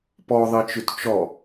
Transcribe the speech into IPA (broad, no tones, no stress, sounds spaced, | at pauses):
p ɔ ðˤ i t͡ʃ ʉ t t͡ʃ ɔ